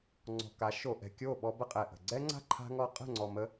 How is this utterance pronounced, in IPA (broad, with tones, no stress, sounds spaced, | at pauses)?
ŋ͡ǀ ɔ̤˨ k a˨˦ ʃ o˨ ʔ ɛ̤˨ kʲ o˦˨ ɓ ɔ˧ b ə˦ qʼ ɛ˨ ʔ ə̤˨ ɡ͡ǀ ɛ˦ ŋ͡ǀ a̤˦ ǃʰ a̤˧ ŋ ɔ˧ qʼ ə̤˦˨ ŋ͡ǀ ɔ˨ m ə˦